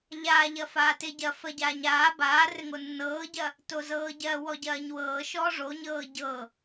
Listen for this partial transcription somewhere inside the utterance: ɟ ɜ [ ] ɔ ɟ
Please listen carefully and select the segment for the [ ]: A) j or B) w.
B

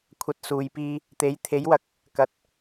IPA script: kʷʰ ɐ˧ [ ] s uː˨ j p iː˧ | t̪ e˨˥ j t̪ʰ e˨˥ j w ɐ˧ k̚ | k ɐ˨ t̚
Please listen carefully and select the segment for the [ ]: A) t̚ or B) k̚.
A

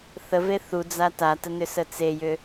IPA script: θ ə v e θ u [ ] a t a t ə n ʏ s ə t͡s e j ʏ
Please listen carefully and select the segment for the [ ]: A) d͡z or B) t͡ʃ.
A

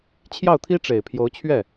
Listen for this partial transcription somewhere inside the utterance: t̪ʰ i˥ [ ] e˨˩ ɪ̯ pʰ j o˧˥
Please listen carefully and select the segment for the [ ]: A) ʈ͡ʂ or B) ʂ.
A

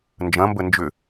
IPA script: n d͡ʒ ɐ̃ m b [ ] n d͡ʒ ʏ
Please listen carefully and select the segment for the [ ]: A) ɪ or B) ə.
B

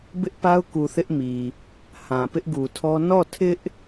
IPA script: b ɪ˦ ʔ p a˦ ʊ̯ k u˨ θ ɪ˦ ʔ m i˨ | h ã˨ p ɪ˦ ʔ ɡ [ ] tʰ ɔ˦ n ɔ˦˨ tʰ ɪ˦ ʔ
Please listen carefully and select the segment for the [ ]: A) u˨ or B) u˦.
A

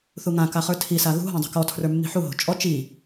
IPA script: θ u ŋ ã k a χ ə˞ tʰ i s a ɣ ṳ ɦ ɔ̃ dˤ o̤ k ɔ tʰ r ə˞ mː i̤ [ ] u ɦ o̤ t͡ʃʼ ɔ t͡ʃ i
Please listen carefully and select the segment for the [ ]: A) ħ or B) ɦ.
A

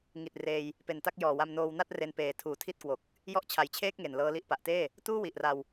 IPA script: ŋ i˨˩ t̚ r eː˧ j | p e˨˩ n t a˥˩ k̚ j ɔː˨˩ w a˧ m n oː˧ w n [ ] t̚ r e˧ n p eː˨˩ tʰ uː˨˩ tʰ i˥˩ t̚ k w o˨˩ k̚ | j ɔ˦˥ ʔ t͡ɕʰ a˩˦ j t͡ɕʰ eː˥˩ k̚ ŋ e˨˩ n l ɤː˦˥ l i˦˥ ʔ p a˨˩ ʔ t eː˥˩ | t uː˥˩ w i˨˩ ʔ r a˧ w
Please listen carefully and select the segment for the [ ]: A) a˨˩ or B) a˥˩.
B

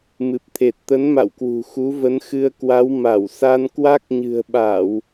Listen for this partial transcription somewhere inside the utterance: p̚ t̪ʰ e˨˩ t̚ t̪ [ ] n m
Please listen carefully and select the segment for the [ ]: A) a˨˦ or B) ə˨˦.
B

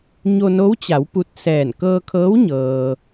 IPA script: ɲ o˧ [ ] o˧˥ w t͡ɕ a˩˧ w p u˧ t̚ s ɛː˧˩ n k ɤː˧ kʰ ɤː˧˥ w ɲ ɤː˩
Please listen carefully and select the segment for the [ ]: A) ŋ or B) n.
B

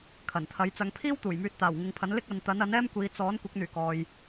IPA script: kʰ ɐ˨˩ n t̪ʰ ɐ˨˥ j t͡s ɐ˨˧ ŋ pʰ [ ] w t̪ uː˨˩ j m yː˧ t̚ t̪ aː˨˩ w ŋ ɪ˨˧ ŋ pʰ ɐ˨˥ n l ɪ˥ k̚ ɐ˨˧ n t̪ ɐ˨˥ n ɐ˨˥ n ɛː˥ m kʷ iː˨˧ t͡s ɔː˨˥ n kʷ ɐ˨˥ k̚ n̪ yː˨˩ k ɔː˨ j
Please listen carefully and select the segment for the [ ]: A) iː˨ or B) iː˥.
B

